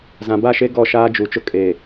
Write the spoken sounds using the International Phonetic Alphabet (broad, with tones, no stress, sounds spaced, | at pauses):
z ã˨ b a˦˨ ʃ e˦ ɡ ɔ˦˨ ʃ aː˦ d͡ʒ u˨ t͡ʃ ʊ˦ kʼ e˨